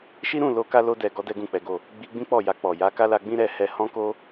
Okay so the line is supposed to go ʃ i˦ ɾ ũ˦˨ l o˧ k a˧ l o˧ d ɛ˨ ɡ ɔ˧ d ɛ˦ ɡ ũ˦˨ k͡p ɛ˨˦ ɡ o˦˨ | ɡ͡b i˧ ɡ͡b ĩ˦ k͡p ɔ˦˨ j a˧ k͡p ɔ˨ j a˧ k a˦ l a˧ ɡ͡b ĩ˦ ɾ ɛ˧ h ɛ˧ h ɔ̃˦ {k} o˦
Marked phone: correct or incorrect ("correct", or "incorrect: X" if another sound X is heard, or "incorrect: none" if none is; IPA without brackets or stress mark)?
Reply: correct